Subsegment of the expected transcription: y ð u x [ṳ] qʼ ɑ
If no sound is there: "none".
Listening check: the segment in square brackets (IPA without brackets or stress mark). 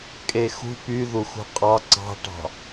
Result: ṳ